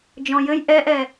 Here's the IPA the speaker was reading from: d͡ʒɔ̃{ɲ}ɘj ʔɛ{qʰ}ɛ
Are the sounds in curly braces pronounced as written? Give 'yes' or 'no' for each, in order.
no, no

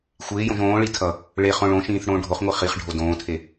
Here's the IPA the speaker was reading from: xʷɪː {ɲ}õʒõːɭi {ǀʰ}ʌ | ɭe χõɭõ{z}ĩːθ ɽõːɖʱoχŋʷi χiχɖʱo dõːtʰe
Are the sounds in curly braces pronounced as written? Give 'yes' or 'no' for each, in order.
no, no, no

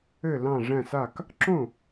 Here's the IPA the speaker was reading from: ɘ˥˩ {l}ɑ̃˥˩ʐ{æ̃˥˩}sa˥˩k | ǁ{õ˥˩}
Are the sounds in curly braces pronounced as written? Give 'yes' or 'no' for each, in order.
yes, yes, yes

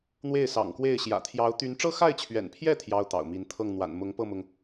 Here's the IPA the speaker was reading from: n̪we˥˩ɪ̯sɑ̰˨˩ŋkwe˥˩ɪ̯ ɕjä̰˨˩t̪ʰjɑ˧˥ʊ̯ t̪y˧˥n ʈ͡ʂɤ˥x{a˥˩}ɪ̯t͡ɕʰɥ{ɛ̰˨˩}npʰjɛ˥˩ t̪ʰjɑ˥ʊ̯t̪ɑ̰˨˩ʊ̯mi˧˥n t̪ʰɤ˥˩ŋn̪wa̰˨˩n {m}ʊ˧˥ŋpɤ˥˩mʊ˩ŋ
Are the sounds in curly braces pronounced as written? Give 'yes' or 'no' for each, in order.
yes, yes, yes

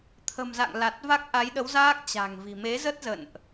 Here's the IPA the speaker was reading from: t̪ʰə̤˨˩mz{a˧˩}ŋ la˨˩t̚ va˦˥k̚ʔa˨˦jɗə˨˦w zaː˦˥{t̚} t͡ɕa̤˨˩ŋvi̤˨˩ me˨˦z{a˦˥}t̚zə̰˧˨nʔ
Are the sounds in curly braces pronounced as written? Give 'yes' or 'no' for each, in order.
no, no, no

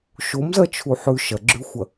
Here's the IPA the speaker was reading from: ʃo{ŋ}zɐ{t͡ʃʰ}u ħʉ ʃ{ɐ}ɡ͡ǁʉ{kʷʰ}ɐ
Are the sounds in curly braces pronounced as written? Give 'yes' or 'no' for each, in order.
no, yes, yes, no

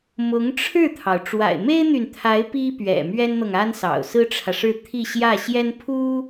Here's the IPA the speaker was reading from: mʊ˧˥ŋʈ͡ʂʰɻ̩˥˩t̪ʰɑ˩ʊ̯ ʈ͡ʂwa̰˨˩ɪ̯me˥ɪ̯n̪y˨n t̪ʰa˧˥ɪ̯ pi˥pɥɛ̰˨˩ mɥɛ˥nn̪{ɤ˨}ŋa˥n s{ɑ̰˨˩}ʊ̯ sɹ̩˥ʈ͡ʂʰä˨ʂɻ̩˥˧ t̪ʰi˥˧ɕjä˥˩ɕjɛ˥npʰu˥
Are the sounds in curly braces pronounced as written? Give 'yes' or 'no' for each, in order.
yes, yes

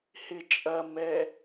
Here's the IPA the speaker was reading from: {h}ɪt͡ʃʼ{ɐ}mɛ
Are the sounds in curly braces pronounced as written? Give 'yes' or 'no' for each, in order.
yes, yes

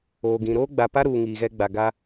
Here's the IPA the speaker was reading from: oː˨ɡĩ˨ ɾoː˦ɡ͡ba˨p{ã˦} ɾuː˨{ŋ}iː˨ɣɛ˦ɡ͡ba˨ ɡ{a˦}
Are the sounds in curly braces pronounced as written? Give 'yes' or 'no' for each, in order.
no, yes, yes

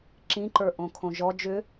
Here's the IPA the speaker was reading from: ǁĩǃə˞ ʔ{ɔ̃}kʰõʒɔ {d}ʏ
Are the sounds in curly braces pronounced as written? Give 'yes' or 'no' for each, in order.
no, no

